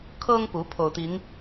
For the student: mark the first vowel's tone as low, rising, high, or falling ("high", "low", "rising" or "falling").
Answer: high